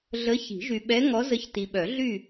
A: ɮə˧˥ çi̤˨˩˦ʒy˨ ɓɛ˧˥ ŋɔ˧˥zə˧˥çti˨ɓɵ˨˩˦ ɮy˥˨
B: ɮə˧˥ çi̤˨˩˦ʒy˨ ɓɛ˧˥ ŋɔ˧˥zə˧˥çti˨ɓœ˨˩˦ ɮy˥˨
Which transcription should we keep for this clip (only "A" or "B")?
B